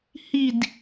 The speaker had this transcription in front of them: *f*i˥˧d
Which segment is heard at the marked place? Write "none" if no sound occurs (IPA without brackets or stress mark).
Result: h